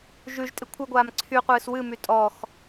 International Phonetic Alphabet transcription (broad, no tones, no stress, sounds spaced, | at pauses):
ʒ ʉ ʒ tʼ ɪ kʷʰ ɨ ɡʷ aː m ǀʰ y qʷ ɨː s w ɨ m y tʼ ɔ x